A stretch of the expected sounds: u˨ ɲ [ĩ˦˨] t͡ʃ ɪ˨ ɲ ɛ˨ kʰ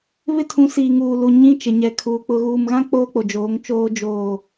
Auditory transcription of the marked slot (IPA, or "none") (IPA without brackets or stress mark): ĩ˦